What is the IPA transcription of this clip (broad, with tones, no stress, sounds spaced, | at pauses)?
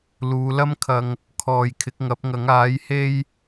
l uː˨˧ l ɐ˥ m kʰ ɐ˧ ŋ | kʰ ɔː˨ j kʰ ɪ˨˥ k̚ ŋ ɐ˨˥ p̚ ŋ ɐ˨˥ ŋ aː˨˥ j h e˥ j